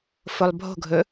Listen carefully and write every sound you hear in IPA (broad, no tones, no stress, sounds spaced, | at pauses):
f o lˠ bʱ o̤ ɡʱ ɵ